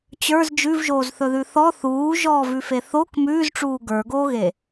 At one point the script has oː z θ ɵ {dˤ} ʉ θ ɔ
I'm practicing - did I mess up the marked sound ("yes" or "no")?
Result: yes